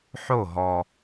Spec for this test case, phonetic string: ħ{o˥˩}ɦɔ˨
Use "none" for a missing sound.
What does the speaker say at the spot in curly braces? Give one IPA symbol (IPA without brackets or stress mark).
o˥˩